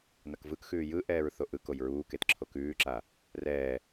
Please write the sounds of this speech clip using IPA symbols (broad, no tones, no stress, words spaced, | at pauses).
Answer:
nɐkvɯkxʉː jɯʔɛːɹ θoʔɯkoj ɹuːket ǁʰokʉːǁa | rɛː